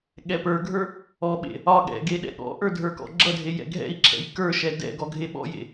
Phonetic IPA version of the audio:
ɠ ɛ p ə˞ ɡʱ ə˞ | ɔ ɓ ḛ | ɒ ɠ ɛ̰ ɡ e ɗ ɛ̰ ɠ ɔ̰ ʔ ə˞ dʱ ə˞ k ɔ̰ ɡ͡ǁ ʌ dʱ e j ɛ̰ ɡʱ ɛ̰ i̯ ǁʰ ɛ̰ j k ə˞ ʃ ɛ d ɛ̰ ɡ ɔ ɡʱ e ɓ ɔ̰ j ḛ

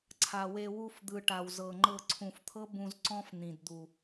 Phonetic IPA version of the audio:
ǀʰ a˨ w e˧ w u˧ f d̪ ɯ˨ ʈ a˨ w z ɤ˨ ŋ͡ǃ ɤ˧ ǀʰ ũ˨ f t̪ʰ ɤ˦ b ũ˧ z ǀ ɔ̃˦ f n̪ ĩ˨ d d̪ u˨

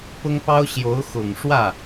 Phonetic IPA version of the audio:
p ʊ˥ ŋ p ɑ˥ ʊ̯ ɕ j o˧˥ ʊ̯ x ʊ˨˩ ŋ ʂ w ä˥˩

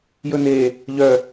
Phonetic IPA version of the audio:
j ɵ n e | ʎ œ

